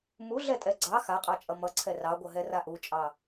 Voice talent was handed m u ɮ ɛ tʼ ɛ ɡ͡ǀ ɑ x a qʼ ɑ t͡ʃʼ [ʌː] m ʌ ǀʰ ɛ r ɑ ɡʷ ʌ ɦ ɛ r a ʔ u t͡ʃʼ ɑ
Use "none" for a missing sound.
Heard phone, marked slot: ʌ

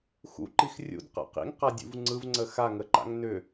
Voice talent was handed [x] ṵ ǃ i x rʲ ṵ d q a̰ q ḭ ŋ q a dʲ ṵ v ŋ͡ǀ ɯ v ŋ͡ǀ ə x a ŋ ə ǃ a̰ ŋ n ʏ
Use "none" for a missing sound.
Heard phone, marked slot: x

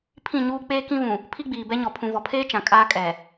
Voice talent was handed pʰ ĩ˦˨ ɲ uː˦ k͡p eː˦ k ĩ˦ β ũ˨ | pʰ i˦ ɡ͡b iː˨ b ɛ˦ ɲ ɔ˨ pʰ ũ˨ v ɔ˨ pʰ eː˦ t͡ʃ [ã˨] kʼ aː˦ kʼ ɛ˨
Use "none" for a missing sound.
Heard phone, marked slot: ã˨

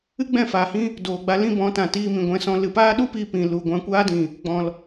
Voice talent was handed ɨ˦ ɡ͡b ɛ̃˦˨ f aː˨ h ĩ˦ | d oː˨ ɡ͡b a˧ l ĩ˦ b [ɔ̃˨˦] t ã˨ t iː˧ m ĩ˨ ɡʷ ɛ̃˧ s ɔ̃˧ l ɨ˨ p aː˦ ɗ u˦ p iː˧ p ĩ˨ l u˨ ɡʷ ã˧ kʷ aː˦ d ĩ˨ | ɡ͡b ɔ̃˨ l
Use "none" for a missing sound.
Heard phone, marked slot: ɔ̃˨˦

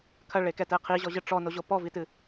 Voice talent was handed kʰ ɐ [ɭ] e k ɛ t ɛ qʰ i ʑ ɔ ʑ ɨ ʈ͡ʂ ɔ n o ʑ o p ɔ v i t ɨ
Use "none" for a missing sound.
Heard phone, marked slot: ɭ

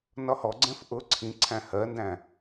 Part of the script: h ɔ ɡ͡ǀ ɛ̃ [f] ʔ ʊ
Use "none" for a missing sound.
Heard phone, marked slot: f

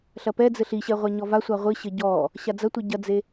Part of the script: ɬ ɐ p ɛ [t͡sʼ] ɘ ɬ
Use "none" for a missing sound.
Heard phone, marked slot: d͡z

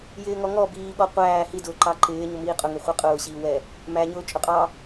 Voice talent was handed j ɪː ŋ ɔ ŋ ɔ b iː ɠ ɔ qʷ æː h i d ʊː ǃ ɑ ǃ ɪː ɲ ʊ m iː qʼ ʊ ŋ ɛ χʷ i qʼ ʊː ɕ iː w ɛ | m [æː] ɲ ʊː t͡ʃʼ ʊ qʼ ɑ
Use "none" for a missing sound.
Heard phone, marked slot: æ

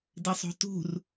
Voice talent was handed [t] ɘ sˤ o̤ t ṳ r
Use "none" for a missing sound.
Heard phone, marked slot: d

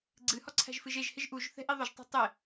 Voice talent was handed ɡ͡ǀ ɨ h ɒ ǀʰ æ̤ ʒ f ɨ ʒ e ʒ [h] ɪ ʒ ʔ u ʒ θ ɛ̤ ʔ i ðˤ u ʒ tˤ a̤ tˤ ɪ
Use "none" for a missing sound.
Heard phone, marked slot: h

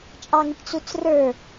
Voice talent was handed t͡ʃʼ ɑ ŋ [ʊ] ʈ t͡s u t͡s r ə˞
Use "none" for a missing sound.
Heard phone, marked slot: ʊ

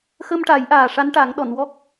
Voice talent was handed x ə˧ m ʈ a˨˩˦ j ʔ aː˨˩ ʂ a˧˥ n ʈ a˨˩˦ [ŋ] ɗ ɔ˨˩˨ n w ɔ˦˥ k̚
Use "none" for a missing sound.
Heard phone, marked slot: ŋ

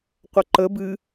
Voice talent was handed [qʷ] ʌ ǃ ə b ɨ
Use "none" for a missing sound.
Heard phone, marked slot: qʷ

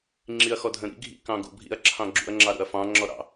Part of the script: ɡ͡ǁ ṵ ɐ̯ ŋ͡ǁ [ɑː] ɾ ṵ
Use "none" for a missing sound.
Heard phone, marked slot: ɑ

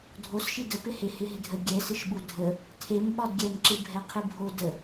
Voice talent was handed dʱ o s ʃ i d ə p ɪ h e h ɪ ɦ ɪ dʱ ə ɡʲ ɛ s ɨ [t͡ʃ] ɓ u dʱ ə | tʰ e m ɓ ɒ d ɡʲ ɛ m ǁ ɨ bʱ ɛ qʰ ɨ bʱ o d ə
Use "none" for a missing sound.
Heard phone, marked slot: ʃ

